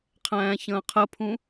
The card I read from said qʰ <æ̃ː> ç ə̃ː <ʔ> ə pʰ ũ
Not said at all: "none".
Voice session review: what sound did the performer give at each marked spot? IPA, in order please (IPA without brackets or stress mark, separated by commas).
æ̃ː, qʰ